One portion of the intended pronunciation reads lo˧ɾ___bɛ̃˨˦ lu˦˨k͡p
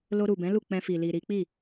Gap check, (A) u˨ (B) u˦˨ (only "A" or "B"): A